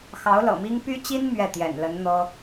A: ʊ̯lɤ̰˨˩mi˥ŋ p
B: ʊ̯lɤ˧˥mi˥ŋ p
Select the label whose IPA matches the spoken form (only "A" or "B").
A